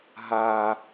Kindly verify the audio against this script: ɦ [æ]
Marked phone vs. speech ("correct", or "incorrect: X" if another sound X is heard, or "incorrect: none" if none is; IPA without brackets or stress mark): incorrect: a